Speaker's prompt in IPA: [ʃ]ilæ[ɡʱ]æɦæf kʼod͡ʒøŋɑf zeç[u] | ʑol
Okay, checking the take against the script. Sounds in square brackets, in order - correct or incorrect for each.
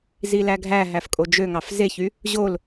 incorrect: z, correct, incorrect: y

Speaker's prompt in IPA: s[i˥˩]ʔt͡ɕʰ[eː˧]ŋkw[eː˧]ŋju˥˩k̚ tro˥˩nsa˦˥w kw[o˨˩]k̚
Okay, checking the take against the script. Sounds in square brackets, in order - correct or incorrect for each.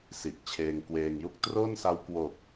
incorrect: i˨˩, correct, correct, correct

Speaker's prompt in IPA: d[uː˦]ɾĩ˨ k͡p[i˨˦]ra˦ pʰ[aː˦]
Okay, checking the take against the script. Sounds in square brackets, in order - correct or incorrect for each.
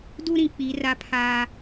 incorrect: u˦, correct, correct

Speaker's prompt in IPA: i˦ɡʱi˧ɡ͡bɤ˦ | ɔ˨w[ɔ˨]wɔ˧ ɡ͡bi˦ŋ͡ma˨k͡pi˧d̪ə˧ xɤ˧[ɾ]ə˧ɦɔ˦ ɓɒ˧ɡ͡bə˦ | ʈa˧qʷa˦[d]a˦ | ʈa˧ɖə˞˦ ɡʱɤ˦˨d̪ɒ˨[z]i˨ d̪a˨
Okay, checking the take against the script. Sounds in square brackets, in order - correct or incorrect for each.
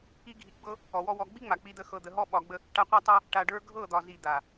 incorrect: ɔ˦, incorrect: d̪, incorrect: tˤ, correct

